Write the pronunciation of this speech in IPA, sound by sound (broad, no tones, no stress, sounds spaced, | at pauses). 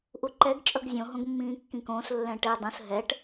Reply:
ʔ u ǃ ɛ ɡ t͡ʃʼ ʌ ɡ zʲ õ ɦ õ ɡ mː ĩː kː ĩ k õː s lː ɛ̃ ʈ e dˤ ũ s ɦ ɛ ʈ